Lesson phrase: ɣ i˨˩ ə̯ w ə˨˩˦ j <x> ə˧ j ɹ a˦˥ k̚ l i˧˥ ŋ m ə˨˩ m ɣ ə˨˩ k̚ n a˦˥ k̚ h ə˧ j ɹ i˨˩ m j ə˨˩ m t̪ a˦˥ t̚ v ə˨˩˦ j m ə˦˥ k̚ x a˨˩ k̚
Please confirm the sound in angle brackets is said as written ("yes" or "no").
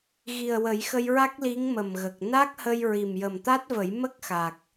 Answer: yes